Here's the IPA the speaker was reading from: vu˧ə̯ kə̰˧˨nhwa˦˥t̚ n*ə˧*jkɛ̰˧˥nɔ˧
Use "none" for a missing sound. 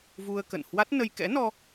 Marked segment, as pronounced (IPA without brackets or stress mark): ə˧